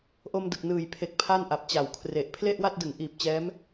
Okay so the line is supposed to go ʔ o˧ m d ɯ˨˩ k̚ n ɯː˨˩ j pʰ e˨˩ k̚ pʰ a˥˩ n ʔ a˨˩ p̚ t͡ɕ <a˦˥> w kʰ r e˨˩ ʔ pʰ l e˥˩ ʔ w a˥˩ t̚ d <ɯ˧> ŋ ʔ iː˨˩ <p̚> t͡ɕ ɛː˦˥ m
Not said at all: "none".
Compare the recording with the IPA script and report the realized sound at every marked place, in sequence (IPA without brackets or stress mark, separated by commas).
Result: a˨˩, ɯ˩˦, p̚